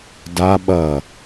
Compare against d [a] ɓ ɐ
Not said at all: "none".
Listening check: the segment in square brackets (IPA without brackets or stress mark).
a